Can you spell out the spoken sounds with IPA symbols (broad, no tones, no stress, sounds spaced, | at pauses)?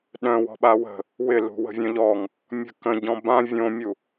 ɗ œ̃ w ɔ̤ ɓ a w ə̤ | w ɪ l ṳ w ə̤ vʲ œ̃ ʎ ɔ ŋ | mʲ ə̤ k ə̃ ɟ ɔ̃ b ã vʲ õ mʲ u